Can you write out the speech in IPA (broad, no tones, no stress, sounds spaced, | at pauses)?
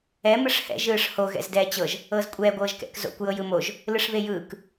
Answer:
ɛ m ɯ ʂ h ɛ̰ ʒ ɯː ʂ h o ɣ ɛ̰ z d ɛː t͡ɕ ɤ ʒ | ɤː z kʷʼ ɛː ɡʷ ɤː ʒ k ɛ̰ k z o̰ kʷ j ɤ j ɯ m o ʒ | l ɯ ʂ β e j ɯː k